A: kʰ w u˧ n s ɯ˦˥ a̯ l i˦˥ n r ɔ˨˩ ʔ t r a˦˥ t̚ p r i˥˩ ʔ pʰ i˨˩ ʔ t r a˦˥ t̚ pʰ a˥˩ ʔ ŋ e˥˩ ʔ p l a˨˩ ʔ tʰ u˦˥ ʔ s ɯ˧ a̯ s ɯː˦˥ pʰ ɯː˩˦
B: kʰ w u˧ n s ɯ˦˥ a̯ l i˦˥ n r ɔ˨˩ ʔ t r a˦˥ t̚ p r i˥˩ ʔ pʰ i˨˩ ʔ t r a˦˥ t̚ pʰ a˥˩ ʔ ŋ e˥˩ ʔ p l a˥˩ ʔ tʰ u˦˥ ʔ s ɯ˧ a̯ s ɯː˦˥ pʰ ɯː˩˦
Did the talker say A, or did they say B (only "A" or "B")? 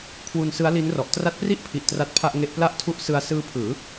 B